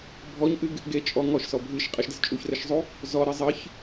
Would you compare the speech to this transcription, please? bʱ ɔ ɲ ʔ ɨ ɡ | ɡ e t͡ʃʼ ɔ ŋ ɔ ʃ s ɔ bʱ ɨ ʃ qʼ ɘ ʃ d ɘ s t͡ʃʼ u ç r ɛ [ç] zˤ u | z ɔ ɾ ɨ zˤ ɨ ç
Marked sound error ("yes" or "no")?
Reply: yes